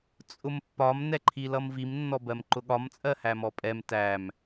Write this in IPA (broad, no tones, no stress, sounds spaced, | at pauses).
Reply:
t͡sʼ ʊ m pː ɒ m n ɛ ǃʰ i l ʌ m v i m nː ɔ b ɜ m ǃ ʊ ɠ ɒ m t͡sʼ ɜ h æ m ɔ pʼ ɛ m t æ m